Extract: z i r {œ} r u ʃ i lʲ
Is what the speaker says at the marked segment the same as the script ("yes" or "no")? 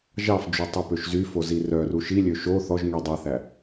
yes